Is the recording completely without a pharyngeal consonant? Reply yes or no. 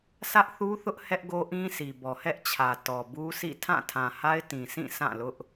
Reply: yes